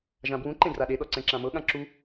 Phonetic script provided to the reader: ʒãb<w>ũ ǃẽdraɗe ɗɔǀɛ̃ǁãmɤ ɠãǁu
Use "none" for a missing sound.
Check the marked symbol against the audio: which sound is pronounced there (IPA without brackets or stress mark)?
w